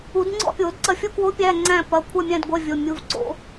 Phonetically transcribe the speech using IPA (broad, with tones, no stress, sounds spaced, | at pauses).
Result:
u˨˩˦ d ŋ͡ǀ ɔ̰˥˧ pʲ o˨˩˦ d ǀ ɐ˧˩ fʲ u˥˧ k w o˧˥ pʲ æ˧˥˧ ŋ͡ǀ æ̃˥˧ p ɐ˩˧˩ kʷʰ ɜ˥˧ mʲ æ̃˥˧ d ɡʷ ɜ˧˥˧ vʲ o˩˧˩ mʲ u˩˧˩ v ǀ o̰˨˩˦